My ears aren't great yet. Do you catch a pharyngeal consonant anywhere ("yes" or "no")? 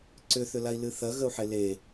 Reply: yes